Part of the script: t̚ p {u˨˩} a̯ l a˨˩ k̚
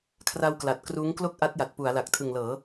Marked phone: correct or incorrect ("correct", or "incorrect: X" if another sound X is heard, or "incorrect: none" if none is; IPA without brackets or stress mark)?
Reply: incorrect: u˩˦